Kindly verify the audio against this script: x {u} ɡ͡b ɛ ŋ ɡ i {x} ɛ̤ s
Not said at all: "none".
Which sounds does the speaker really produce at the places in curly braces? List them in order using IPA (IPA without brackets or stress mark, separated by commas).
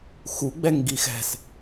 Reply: u, x